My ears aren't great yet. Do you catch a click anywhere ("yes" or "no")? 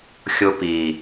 no